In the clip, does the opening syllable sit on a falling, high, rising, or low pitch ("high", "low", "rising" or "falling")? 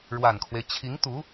low